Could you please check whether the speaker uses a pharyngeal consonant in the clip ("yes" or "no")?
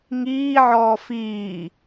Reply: yes